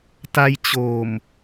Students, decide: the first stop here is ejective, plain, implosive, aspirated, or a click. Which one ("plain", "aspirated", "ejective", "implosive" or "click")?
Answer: plain